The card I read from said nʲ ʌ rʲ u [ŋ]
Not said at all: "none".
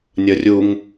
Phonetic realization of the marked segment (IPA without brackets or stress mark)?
ŋ